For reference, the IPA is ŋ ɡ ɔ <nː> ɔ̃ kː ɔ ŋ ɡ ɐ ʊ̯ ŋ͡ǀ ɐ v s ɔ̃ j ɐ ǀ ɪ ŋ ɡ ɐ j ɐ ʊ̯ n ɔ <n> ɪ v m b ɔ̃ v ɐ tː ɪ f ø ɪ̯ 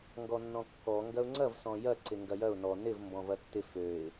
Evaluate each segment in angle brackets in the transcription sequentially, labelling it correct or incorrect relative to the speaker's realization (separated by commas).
correct, correct